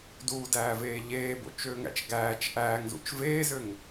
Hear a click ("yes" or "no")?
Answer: no